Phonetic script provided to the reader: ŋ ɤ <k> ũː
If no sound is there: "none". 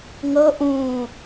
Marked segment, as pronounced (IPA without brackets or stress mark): ʔ